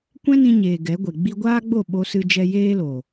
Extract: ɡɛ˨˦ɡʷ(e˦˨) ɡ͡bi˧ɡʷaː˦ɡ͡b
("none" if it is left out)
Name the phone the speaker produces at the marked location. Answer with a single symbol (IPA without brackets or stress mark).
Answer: e˨